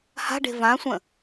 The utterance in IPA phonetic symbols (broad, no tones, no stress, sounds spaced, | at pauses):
h a̤ ɖ e̤ v ã sʷ ə̃